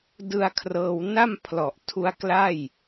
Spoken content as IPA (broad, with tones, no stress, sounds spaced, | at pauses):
d ɯ˧ a̯ kʰ r ɤː˧ w n a˥˩ m pʰ l ɔ˨˩ ʔ tʰ u˦˥ a̯ k l a˥˩ j